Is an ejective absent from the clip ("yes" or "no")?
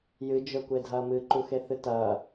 yes